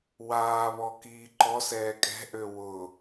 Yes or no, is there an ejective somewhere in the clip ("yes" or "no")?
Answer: yes